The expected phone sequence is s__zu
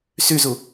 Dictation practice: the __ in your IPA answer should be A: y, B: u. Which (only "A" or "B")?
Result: A